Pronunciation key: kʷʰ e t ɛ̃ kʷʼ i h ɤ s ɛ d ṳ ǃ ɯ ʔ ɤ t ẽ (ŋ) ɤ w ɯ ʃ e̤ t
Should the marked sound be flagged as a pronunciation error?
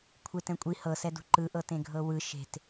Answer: yes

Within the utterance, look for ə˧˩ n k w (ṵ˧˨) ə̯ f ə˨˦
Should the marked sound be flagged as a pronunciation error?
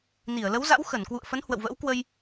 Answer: no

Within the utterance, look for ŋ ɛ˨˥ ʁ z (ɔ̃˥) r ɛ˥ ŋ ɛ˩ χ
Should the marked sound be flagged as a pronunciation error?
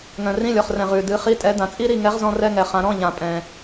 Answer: no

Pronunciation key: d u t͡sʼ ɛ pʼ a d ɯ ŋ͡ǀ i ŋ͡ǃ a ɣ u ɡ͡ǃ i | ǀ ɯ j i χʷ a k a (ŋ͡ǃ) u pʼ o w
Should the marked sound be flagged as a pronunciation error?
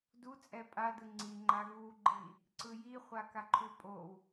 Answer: yes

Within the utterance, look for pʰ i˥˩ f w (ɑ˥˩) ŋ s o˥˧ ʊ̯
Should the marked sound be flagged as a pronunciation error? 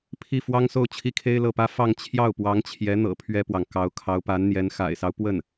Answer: yes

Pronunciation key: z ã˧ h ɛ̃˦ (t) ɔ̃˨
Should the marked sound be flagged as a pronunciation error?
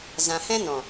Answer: yes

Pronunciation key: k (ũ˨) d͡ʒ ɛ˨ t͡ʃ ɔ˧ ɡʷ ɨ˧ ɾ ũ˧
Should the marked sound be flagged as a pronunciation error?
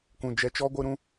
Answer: no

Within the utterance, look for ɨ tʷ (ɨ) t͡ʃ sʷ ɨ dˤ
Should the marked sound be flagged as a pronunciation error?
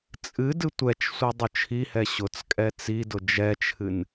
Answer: yes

